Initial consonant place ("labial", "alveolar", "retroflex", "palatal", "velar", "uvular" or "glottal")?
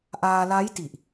glottal